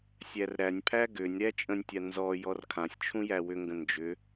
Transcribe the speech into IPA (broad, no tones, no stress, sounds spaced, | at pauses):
sʲ æ r ɾ æ nʲ pʰ æ ɡ ʏ nʲ ɾ æ t͡ʃʼ ə̃ nʲ tʲ a n z ɔ j ɔ r kʰ ã sʲ t͡ʃʰ ũ j æ w ʏ ŋ ɡ ə̃ n d͡ʒ ʏ